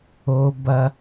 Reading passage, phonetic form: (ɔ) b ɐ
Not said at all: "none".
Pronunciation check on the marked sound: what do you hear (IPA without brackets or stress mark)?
o